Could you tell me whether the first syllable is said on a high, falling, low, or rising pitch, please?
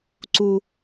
high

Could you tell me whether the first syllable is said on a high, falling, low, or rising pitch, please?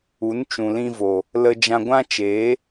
rising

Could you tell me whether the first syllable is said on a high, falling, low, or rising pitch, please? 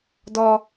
high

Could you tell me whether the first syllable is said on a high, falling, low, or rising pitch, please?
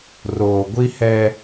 low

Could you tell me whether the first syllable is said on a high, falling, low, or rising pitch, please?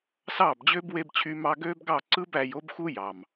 falling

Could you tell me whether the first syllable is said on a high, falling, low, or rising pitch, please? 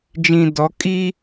low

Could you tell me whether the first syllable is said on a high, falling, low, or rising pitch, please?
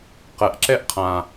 low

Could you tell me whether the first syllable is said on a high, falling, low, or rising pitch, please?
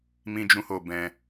high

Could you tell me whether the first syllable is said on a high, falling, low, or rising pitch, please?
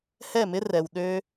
falling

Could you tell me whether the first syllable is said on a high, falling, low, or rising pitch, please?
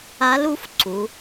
rising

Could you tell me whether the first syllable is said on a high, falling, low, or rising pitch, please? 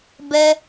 high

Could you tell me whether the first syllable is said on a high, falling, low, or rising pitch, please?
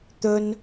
high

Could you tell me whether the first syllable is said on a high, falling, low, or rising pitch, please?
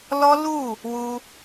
high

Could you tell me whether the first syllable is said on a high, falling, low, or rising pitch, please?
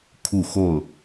falling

